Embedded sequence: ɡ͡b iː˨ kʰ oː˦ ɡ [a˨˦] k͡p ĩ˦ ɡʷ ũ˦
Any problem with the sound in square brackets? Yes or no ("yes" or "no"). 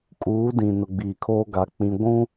no